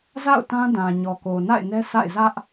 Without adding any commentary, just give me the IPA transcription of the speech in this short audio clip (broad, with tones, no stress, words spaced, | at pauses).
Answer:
za̰˦˨ʊ̯tã˦dã˨ ɲɔ˨ko˨na̰˦˨ɪ̯nɛ˦ sa̰˦˨ɪ̯ zä˦ʔ